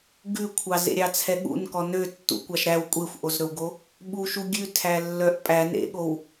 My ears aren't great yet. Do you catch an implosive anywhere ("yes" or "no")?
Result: yes